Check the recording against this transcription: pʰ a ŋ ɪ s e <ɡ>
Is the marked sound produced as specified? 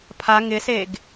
yes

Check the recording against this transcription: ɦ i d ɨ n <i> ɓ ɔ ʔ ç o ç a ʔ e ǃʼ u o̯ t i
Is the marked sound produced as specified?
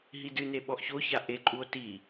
no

